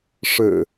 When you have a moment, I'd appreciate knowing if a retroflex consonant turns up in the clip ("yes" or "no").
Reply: yes